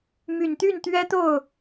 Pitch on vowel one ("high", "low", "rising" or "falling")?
low